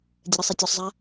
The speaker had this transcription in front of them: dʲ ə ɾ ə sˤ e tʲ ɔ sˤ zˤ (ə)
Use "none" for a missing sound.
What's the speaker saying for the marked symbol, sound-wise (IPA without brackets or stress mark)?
a